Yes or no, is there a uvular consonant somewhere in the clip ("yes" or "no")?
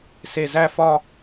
no